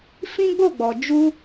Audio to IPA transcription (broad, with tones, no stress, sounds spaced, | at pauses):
f ĩ˦ ɡ͡b o˦˨ ɡ͡b ɔ˨ d͡ʒ u˧